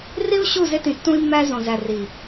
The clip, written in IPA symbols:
ri˦u̯ ɕu˦˨ze˦tĩ˨ tːũ˦i̯mːæ˦zõ˨zæ˨ ri˨

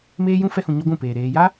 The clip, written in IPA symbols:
meː˦jũ˦ fɛ˧hũ˨ɲɔ˧ ɡʷũ˦˨peː˨ ɾeː˧ ja˦

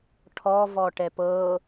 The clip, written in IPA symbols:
ʈʰɔvɔʈɛp ɤ

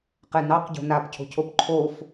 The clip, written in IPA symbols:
qɛnɑq ɟo̤napcʰo̤cʰop ǃʰof

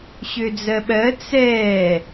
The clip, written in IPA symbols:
ɕød͡zɜɓɜ t͡sɛː

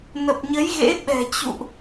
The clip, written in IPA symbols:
nə˨˩p̚ɲə˨˦jɣḛ˧˥ ɓɛ̤˨˩t͡ɕṵ˧˨ʔ

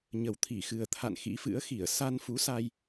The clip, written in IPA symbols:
ɲə˨˩wt̪ʰi˧˩xɨ˨˩ə̯t̪ʰa̰˧˨n xḭ˧˥fɨ̰˧˥ə̯ xi˧˩ə̯ sa˧nfu˨˦sa˧j

